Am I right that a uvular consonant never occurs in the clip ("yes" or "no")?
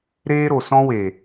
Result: yes